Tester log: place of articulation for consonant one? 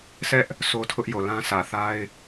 alveolar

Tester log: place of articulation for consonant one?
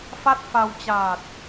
labial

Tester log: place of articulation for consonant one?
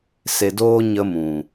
alveolar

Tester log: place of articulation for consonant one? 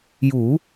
palatal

